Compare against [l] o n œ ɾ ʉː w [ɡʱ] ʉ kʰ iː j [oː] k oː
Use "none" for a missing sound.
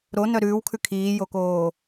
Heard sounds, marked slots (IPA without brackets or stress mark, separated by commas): ɾ, kʰ, o